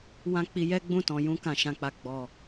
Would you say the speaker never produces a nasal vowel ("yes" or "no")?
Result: no